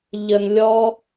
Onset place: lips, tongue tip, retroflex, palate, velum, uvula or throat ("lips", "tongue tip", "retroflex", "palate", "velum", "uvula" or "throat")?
palate